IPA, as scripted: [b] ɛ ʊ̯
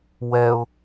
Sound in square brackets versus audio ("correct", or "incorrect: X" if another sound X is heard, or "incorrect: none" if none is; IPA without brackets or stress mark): incorrect: w